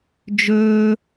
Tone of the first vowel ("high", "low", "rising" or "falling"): high